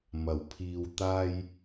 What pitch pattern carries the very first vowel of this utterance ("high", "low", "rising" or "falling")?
low